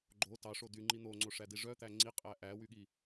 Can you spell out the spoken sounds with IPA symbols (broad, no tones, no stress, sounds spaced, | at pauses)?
ɡ͡ǃ o t ɑ ʂ o d y ŋ͡ǃ i n̪ o ŋ͡ǀ o ʂ æ d i ʐ œ t̪ æ ŋ͡ǀ i qʼ æ ʔ æ w y ɠ i